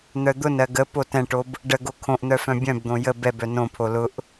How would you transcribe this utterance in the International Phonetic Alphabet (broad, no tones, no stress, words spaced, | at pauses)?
n̪œd̪ʊnɜ ɡə potɛ̃ʈob | ɖəɡo kʰõʔn̪œ fœ̃bʲœ̃bd̪õ jə bɛbœ nõpʰo lʊʔ